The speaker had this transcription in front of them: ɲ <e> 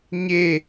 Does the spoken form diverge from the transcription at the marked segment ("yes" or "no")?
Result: no